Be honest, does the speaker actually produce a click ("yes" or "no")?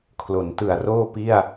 no